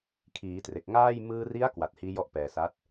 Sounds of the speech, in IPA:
kʰ iː˩˦ t r e˨˩ k̚ ŋ aː˥˩ j m ɯː˧ r i˦˥ a̯ k w a˨˩ t̚ h iː˦˥ j ɔ˥˩ ʔ p ɛː˨˩ s a˦˥ t̚

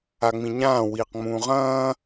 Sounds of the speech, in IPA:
a ŋ͡m ĩ ɲ ãː w iː q ŋ͡m ũː ʁ ɐ̃ː

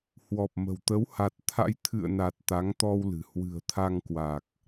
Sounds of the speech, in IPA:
h w ɔ˨˩ p̚ m ə̤˨˩ w t̪ ə˨˦ w h a˨˩ t̚ t̪ʰ a̰˧˥ j t̪ʰ ɨ̰˧˨ ə̯ n a˨˩ t̚ t̪ a˨˦ ŋ t̪ ɔ˧ w l ɨ̤˨˩ h w ɨ̤˨˩ ə̯ t̪ʰ a˧ ŋ k w a˨˩ k̚

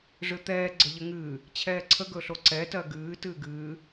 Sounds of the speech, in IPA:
ʐ ɨ t̪ ɛː ɡ͡ǀ ə ʎ ə ŋ ɨː | t͡ɕʰ ɛː ǀʰ ə ɡ ɵ ɬ o ǀ ɛ t ɜ ɡ ɨː t ɨː ɡ ɨː

